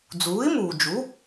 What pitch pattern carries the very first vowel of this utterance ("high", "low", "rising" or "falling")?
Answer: rising